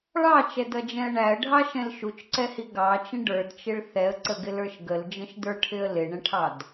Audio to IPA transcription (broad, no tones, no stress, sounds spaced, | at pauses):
ɭ ɑ t͡ʃ ɛ d ʌ d͡ʒ ɛ̃ ə̯ ɳ æ ə̯ ɖʱ ɑ ʃ ɛ̃ l ʃ u t͡ʃ ǀ ɛ h i ɡ ɑ t͡ʃ ə̃ ɖ ə˞ d t͡ʃ ɪ ɭ θ ɛ ə̯ ǀ ə ɡ ɪ l ə˞ ʃ ɡ ə l d͡ʒ ə̃ ʃ d ə˞ ʈʰ ɪ ə̯ l ɪ ɳ ə̃ ʈʰ ɑ d